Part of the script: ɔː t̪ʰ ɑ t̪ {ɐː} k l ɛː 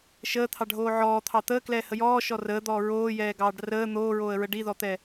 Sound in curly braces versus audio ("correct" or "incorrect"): incorrect